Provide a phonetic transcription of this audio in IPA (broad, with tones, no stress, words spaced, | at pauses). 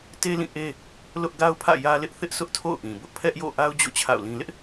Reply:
te˦lĩ˦˨ ʔe˦ | lʊ˦ʔ ɡa˦ʊ̯pʰä̰˦˨ jä˦lɪ˦ʔ θɪ˦ʔsʰʊ˦ʔtʰo̰˦˨ʊ̯ ʔĩ˨bʊ˦ʔ pʰɛ˦ʔjo̰˦˨ ʔa˦ʊ̯d͡ʑo̰˦˨ t͡ɕʰa̰˦˨ʊ̯lĩ˦ lɪ˦ʔ